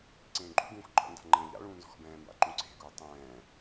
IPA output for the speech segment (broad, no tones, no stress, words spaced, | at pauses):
ǀẽːɡ͡ǃṵɡũːx ɡ͡ǃɔ̰nda̤ ŋ͡ǃẽːʎa̰ɭũː nzɔ̤xbɛ̃ːmba̰ ǃũǀe̤ɡuː tˤɛ̃ː